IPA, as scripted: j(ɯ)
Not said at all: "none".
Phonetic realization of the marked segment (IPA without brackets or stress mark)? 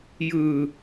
ɯ